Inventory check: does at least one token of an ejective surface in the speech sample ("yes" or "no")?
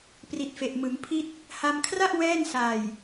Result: no